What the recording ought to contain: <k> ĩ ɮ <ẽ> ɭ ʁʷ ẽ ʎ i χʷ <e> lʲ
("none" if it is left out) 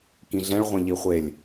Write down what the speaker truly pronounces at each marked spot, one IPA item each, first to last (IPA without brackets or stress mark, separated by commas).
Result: k, ɛ̃, e